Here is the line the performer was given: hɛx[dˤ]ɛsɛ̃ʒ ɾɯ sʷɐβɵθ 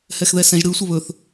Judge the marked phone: incorrect: ð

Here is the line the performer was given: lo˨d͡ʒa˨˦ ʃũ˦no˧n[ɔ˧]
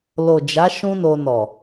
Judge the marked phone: incorrect: ɔ˨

